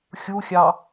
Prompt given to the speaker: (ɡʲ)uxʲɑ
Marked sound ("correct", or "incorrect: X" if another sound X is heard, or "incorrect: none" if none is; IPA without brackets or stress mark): incorrect: xʲ